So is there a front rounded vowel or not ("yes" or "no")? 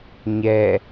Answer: no